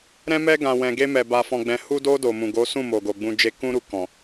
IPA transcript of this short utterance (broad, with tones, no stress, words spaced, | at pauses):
ɾɛ̃˧mɛ˧ɡã˨ wɛ̃˨ɡe˧mɛ˨ ba˨fɔ̃˨ɡ͡bɛ̃˨ hu˧do˧ do˨mũ˨ɡo˨˦sũ˦˨ mo˨ɡo˨ɡ͡bũ˧ d͡ʒe˧ kũ˦ɾu˧ kɔ̃˨